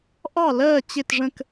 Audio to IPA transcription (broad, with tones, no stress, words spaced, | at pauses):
ʔɑ˥˩lɜː˥˩t͡ɕɪ˧˩tʐə̃˧˩k